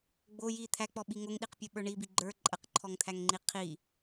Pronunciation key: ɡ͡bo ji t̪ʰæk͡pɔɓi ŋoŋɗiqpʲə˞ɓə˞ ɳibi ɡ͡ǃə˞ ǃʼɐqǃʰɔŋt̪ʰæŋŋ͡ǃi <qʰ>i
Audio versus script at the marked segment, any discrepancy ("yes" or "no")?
no